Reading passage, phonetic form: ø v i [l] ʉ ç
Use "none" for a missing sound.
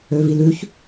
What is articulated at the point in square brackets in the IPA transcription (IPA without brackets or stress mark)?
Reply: l